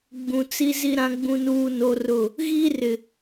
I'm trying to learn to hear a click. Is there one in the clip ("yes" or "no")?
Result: no